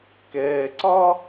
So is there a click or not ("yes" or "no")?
yes